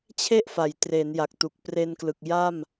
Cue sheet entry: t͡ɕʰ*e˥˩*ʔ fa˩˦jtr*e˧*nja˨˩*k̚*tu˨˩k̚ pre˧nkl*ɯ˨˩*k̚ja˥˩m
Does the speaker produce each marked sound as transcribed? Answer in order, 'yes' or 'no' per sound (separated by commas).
yes, no, yes, yes